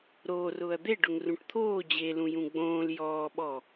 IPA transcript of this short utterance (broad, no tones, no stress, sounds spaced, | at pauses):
ɾ oː r ʊː ɐ̯ d̪ e ɖ ʊ ŋ r ũ ʈ t̪ʰ oː d͡ʑ e l ũ j ũ ɡ͡b õː l j ɔː ɓ ɔː